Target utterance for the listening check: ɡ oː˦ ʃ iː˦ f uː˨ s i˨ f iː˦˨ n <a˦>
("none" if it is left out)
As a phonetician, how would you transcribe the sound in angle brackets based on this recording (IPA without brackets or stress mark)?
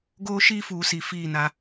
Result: a˦